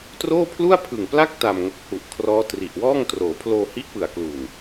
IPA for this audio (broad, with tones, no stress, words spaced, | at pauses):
troː˥˩pʰlu˥˩a̯pʰɯ˨˩ŋpla˥˩k̚ ta˨˩m ŋo˨˩k̚hu˨˩ʔkʰrɔː˦˥ tri˨˩ʔwɔː˥˩ŋ troː˩˦pʰloː˧hi˦˥ʔpɯ˨˩a̯ klu˨˩n